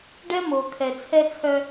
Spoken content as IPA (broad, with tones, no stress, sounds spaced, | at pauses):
ɖ ɛ˦ m o˨ kʰ ɛ˨ t͡sʰ ɛ˦ t͡sʰ œ˦